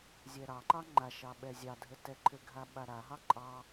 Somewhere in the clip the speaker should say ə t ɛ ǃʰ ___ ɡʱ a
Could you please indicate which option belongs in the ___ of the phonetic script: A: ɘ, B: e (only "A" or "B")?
A